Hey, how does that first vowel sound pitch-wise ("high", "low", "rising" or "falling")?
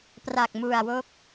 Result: low